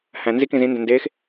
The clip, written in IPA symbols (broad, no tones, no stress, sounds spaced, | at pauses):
h æ̃ n z i k ĩ z ĩ n d ɛ̃ n d eː x